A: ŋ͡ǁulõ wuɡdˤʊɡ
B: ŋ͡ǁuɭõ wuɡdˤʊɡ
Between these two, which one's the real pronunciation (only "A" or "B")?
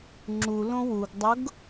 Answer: A